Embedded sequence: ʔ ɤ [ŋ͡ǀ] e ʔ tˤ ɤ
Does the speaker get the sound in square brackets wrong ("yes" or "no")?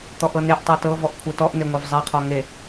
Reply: yes